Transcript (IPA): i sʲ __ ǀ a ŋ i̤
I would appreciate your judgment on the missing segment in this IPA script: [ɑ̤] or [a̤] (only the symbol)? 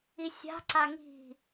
a̤